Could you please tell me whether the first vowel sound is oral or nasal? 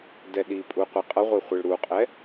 oral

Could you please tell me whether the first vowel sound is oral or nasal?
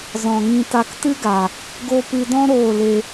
nasal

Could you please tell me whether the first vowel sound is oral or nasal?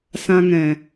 nasal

